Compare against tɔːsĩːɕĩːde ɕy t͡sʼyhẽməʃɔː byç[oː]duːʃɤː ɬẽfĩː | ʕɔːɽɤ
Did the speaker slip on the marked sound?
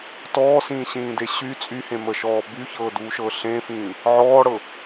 yes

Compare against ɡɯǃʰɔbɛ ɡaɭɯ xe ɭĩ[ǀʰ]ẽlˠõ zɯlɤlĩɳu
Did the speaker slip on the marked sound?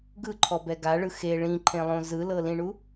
yes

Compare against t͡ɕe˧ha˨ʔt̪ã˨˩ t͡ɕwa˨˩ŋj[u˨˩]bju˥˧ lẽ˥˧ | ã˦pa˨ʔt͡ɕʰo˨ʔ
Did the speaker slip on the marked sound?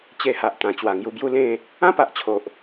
yes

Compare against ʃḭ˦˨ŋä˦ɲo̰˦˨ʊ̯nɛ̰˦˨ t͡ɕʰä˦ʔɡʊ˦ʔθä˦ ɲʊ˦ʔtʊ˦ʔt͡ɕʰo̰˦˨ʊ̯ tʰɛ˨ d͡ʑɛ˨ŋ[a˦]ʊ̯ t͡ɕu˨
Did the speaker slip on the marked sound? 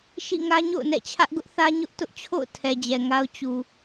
no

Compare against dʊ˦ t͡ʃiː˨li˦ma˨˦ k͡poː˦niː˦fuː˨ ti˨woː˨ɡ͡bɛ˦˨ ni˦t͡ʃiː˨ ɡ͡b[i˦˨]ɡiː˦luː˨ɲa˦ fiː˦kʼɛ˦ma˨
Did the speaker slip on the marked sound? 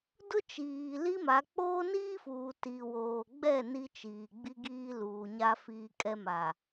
yes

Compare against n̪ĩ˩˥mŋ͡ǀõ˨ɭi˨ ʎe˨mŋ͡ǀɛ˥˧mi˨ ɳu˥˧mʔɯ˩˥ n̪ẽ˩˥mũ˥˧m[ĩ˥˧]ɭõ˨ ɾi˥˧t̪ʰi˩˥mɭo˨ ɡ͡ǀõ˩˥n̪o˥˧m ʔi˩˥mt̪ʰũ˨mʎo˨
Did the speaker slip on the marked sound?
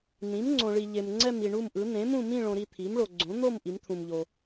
no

